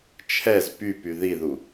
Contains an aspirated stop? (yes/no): yes